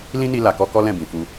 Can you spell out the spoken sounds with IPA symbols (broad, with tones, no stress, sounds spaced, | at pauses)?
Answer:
l ĩ˦ n i˧ l a˨ k ɔ˧ k ɔ˦ l ɛ̃˦˨ b ĩ˨ f u˧